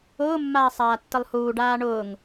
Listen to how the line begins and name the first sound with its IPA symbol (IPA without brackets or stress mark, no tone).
ʊː